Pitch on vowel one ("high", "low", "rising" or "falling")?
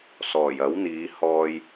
low